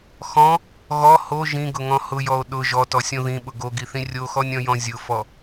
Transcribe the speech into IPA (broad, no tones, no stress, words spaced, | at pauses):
xɔ̃ | ɣɔ ho ʒĩɡʊŋɔ̃ hʊjɔo̯ ɗʊ ʒɔtɔsʲõ ðĩɓʊ ɡoɡiθĩ rʲoxɔnʲɔ̃jɔ̃ zʲʊfɔ